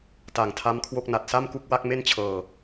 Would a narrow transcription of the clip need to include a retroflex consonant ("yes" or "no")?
no